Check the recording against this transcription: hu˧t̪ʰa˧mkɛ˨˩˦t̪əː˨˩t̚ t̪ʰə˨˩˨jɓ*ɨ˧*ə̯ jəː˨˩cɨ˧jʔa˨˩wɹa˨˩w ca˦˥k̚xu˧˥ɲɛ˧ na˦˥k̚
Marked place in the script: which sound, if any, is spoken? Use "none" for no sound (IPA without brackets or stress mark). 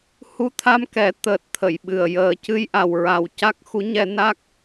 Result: ɨ˨˩